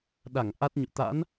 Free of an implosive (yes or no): no